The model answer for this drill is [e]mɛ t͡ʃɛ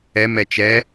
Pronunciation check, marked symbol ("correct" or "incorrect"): incorrect